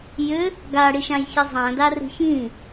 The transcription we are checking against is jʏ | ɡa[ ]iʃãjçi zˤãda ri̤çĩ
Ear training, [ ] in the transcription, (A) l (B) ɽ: B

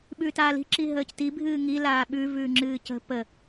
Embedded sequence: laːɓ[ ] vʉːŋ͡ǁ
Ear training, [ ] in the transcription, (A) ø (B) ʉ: B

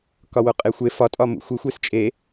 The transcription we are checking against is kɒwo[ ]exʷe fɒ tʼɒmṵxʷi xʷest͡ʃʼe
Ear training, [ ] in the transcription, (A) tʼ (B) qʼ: B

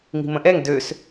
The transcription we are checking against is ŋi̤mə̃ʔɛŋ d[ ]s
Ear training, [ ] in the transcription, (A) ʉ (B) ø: B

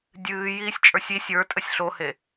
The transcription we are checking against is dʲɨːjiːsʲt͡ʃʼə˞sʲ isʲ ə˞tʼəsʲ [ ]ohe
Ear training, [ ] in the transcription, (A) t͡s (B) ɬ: B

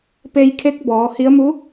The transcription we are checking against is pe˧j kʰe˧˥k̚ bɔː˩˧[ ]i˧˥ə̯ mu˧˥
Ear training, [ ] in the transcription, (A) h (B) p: A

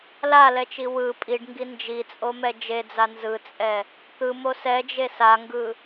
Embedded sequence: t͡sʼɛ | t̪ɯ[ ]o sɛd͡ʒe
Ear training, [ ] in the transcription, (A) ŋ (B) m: B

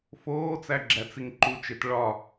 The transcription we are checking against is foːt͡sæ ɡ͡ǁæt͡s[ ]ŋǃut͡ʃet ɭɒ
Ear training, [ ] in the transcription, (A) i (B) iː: A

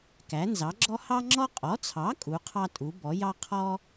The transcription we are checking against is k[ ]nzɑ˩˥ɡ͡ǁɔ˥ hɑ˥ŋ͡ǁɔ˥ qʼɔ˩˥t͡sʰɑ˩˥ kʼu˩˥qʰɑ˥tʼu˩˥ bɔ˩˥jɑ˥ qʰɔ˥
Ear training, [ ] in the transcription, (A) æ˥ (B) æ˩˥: B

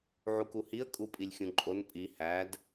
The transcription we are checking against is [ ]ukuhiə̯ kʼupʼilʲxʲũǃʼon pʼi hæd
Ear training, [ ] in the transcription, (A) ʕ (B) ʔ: A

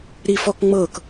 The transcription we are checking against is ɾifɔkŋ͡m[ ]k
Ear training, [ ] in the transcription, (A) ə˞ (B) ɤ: B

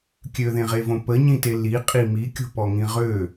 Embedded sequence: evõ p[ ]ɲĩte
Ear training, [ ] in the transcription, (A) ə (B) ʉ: A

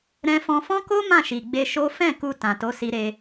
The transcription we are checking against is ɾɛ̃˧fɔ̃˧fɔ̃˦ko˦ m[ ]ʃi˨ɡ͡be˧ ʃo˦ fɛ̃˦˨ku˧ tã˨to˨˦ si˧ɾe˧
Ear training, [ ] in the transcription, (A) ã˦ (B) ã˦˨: B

